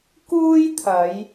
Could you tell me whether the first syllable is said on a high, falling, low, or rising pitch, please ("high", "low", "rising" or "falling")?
high